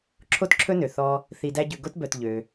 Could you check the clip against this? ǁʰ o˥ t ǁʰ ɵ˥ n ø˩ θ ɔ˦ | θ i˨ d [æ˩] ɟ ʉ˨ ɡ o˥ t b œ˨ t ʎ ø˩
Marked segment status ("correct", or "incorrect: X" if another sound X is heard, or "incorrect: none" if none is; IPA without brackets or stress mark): incorrect: æ˦